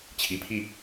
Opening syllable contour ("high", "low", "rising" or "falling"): rising